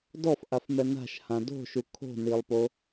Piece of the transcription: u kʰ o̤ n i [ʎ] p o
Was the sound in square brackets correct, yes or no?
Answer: no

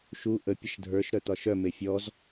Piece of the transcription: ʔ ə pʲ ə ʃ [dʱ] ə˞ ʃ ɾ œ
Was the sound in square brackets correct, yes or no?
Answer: yes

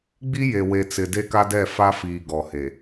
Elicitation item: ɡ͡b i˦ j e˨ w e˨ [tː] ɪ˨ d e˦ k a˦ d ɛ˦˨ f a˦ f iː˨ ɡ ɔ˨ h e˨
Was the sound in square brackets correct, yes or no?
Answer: no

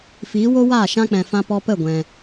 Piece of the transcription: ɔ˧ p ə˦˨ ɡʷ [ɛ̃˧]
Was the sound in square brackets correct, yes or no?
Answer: yes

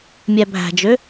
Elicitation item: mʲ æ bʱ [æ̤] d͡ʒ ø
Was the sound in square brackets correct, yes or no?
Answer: yes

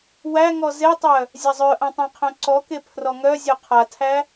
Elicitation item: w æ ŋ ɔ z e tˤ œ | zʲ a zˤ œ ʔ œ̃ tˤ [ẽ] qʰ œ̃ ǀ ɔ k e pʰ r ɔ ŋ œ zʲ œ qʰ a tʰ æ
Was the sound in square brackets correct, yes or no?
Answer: yes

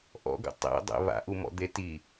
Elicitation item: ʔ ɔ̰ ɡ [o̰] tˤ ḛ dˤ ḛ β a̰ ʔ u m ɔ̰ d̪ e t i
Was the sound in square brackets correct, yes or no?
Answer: no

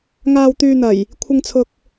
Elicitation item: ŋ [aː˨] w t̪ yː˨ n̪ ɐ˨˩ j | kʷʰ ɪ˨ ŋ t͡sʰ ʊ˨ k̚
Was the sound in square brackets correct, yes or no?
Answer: yes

